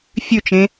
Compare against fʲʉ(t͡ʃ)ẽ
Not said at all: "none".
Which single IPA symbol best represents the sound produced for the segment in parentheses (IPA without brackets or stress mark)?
t͡ʃ